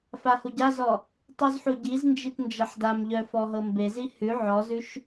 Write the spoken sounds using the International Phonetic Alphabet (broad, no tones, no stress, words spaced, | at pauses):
fahuɟazɔ | tˤuzħuɟiznd͡ʒit nd͡ʒɐħdamʎœ fɔɦɤmbezi hʉ ʕɔzʉʃ